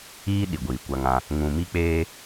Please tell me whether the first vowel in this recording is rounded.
no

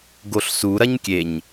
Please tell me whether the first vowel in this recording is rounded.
yes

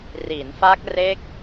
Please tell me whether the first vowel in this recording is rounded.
no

